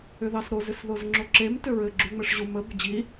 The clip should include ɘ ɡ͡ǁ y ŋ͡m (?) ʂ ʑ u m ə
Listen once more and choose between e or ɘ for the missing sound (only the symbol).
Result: ɘ